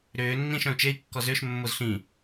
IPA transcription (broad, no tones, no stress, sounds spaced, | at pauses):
ɾ ʏː nː ĩ ʃ œ̃ u̯ t͡ʃ e i̯ kː ɔ z ʏː ʃ mː o z ɬ ĩ